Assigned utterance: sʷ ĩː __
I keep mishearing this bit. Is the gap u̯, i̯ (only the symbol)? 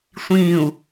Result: u̯